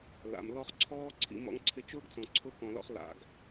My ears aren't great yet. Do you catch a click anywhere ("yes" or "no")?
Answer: yes